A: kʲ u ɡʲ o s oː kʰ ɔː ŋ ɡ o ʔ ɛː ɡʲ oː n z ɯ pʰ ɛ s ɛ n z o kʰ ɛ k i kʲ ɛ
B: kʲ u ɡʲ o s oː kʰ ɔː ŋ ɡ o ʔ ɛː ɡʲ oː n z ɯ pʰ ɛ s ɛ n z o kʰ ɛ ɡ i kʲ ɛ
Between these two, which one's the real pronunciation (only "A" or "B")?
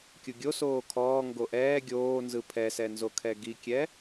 B